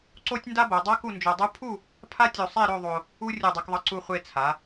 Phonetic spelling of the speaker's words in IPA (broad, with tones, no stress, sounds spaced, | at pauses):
ǀ o˥ tʲ n d a˥ b o˩˧ dˤ a˥ k u˥˧ n d͡ʒ o˧ dˤ u˥ pʰ u˥˧ | pʰ a˥ tʲ o˧ sˤ e˥˧ ɾ o˥˧ ðˤ o˧ | u˥ rʲ u˧˩ dˤ ɛ˧ k ðˤ ʌ˧ ǀ u˥˧ χʷ e˧ t͡sʰ a˩˧